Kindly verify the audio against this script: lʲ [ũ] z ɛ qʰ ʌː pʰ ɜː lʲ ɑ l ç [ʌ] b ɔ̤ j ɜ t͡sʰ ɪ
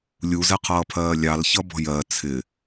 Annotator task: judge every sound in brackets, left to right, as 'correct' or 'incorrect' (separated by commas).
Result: incorrect, correct